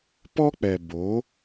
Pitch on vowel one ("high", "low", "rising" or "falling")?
high